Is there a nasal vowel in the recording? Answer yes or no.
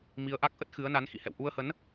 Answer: no